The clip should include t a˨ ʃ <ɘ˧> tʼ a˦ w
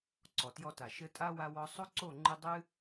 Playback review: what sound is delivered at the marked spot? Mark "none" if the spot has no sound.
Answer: ɘ˧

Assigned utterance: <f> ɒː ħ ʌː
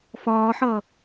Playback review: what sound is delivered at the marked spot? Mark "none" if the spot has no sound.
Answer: f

